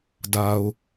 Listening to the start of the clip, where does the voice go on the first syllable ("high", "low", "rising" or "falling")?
low